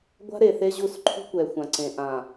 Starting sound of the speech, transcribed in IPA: ɡʷ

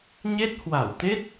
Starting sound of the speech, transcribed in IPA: ɲ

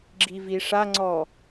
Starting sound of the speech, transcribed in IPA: ɡ͡ǁ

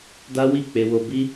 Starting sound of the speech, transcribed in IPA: d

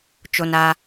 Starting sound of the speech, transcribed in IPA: t͡ʃ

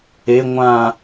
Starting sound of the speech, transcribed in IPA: e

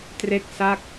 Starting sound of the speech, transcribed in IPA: t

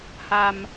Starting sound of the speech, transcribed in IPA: h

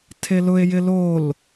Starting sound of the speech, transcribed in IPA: tʰ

